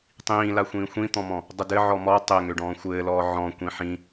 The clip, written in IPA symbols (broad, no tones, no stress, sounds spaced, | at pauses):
tˤ ĩː l a xʷ ĩː xʷ ĩ t̪ ɔ̃ m ɔ̃ | dˤ ə d ɘ ʕ ɔ m ɔ tˤ ɘ ŋ ø ɖ ɔ̃ː xʷ ɘː l ɔː ʕ ɔ̃ kʷ ĩ ħ ĩ